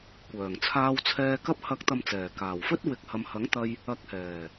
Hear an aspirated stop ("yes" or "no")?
yes